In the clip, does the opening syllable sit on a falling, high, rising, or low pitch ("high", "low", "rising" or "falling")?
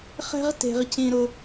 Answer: high